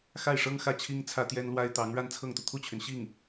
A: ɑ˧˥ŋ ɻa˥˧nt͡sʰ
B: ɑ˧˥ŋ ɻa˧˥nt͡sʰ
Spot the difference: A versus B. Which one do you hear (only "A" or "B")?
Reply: A